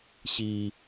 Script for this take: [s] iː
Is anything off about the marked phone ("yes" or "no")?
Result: yes